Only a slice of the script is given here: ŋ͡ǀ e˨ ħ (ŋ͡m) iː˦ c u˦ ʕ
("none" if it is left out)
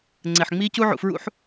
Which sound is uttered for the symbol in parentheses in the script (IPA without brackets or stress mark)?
ŋ͡m